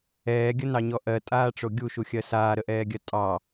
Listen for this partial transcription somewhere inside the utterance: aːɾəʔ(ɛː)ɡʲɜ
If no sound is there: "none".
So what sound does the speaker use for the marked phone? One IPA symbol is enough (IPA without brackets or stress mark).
ɛː